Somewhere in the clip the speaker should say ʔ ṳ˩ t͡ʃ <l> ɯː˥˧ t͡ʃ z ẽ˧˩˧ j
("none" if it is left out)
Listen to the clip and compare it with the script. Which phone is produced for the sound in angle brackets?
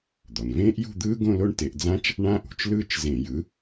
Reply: l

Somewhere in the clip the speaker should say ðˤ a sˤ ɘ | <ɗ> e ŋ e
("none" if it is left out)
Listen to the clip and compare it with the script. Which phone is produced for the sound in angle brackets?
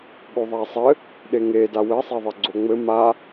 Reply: ɗ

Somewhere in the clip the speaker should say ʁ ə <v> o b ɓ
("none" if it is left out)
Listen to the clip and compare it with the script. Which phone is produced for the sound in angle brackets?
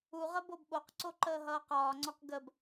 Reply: b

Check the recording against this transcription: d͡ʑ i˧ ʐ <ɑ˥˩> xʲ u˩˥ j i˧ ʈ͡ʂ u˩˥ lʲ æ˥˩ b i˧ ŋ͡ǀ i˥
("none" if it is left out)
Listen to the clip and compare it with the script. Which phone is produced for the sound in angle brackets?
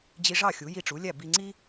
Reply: ɑ˥˩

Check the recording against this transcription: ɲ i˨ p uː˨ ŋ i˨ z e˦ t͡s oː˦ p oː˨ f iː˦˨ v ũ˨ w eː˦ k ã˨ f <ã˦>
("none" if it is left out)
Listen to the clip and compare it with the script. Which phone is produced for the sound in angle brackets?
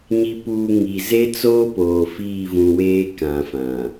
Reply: ã˨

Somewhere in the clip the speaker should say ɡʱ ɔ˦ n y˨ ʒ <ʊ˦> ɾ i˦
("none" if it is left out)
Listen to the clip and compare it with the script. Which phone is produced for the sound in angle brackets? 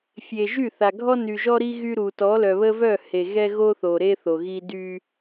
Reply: ɔ˦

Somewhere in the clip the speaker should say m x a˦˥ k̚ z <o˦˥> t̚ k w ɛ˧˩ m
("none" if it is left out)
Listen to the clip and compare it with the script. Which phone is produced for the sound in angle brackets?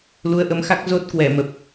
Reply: o˦˥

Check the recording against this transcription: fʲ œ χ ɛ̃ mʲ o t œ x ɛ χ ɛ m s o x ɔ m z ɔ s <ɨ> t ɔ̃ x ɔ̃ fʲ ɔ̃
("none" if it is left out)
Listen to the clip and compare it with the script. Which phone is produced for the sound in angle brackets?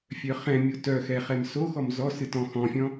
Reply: ɨ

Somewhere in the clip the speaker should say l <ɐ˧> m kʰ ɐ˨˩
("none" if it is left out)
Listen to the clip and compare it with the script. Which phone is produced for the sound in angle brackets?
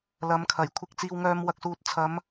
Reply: ɐ˨˧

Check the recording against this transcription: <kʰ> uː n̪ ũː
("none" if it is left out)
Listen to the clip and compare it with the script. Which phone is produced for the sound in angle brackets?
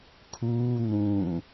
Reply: kʰ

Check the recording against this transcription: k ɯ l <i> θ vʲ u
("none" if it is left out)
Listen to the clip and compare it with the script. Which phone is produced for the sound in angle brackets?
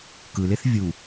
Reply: e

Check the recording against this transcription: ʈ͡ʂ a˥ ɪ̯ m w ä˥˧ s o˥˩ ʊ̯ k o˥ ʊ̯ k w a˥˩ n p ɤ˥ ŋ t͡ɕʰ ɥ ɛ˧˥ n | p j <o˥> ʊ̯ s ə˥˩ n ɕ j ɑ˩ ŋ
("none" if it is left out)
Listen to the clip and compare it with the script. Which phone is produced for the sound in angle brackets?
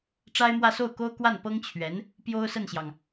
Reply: o˥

